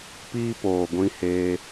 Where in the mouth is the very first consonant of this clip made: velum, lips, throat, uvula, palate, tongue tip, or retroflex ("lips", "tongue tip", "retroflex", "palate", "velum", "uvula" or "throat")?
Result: lips